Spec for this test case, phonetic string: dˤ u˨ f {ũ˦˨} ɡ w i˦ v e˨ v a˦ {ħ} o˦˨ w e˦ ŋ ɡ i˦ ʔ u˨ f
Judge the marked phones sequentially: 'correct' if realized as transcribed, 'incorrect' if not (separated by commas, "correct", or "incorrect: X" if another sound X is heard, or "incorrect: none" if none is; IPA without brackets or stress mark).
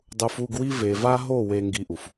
incorrect: u˦˨, incorrect: ɦ